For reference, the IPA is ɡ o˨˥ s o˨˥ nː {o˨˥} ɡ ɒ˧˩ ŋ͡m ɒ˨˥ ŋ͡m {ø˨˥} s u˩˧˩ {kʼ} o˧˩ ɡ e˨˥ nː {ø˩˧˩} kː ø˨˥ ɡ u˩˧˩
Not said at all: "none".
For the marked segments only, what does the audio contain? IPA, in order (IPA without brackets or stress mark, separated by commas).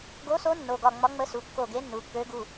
o˩˧˩, ə˨˥, kː, u˩˧˩